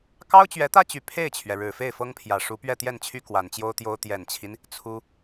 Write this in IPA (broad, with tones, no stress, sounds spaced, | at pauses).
k ɑ˥ ʊ̯ t͡ɕ ɥ ɛ˧˥ t̪ ä˥ t͡ɕ y˨˩ pʰ e˥˩ ɪ̯ t͡ɕʰ ɥ ɛ˩ ɻ ɻ̩˨˩ f e˥˩ ɪ̯ f ɤ˥ ŋ pʰ j ä˨˩ ʂ u˧˥ p ɥ ɛ˥˧ t̪ j ɛ˥˩ n t͡ɕʰ y˥ k w a˨˩ n t͡ɕ j o˥ ʊ̯ t̪ j o˥ ʊ̯ t̪ j ɛ˨˩ n t͡ɕʰ i˦ n | t͡sʰ u˥